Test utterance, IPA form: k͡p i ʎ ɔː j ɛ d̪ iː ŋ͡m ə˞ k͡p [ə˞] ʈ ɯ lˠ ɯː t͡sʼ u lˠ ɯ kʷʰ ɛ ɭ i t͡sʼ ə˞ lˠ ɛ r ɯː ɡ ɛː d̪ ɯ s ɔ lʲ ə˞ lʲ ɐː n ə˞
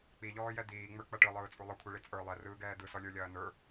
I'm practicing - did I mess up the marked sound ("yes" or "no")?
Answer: yes